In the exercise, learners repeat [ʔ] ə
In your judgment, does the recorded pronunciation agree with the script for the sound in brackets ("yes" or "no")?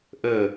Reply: yes